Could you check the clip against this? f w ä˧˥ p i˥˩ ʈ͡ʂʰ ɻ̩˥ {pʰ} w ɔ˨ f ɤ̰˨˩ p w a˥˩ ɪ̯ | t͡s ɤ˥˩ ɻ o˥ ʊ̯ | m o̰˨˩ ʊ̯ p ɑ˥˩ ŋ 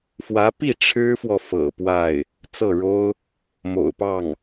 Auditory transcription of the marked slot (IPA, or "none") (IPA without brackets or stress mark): f